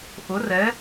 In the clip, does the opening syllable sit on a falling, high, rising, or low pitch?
rising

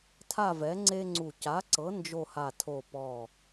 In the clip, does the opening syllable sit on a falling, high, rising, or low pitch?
falling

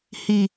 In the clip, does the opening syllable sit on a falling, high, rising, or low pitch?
low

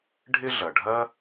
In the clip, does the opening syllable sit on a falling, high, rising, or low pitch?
high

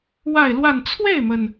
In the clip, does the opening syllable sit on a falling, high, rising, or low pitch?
falling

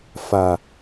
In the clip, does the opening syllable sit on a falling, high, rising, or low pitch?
low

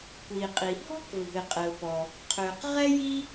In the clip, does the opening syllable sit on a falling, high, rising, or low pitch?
low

